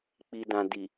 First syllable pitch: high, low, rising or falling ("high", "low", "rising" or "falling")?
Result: low